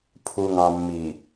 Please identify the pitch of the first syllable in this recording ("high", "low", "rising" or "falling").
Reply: low